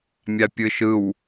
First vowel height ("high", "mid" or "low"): low